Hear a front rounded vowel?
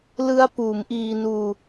no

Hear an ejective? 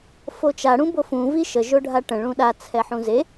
no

